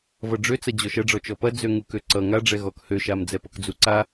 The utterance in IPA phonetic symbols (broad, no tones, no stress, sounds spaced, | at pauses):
v ʌ ɖ͡ʐ ø t͡s ɐ d͡ʑ ɔ ʃ ɐ ɖ͡ʐ ɔ t͡ʃ ɔ p ɐ d͡z ø ŋ u k ø ǀ ʌ ŋ a ɖ͡ʐ ɛ ɣ ɔ k h ø ʃ a m d͡z ɛ p ʌ k d͡z u ǀ a